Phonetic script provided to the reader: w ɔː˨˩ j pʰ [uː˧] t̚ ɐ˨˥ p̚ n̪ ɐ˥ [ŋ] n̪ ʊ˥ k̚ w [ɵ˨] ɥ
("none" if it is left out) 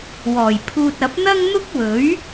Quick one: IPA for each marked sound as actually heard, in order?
uː˧, ŋ, ɵ˨˥

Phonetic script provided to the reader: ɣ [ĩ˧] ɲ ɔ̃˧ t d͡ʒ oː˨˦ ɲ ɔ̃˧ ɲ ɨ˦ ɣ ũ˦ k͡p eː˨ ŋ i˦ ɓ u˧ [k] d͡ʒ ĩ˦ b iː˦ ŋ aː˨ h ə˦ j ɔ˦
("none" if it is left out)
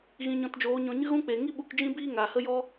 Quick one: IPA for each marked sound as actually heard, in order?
ĩ˧, k

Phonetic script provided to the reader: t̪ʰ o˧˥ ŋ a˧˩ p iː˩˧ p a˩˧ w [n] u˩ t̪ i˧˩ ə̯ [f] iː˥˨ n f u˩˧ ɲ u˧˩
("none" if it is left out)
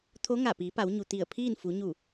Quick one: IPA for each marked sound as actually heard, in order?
ɲ, pʰ

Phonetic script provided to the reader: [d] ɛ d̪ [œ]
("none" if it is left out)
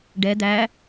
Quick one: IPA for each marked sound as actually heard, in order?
ɖ, æ

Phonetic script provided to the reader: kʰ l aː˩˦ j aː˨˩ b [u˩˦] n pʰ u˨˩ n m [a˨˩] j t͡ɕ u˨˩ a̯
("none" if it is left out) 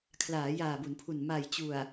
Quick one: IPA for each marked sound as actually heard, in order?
u˩˦, a˨˩

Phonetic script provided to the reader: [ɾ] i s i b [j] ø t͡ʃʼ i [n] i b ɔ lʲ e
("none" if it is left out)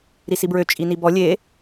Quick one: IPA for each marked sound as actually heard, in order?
ɾ, ɹ, n

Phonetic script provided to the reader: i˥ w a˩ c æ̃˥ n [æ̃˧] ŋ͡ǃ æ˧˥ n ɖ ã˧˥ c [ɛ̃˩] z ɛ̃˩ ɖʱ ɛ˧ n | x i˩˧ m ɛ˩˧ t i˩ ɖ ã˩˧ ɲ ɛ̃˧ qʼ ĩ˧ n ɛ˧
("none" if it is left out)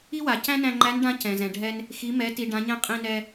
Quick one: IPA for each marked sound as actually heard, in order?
æ̃˧, ɛ̃˩

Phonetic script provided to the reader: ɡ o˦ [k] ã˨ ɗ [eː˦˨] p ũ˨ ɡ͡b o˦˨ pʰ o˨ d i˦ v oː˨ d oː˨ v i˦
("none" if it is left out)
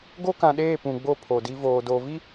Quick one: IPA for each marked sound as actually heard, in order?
k, eː˦˨

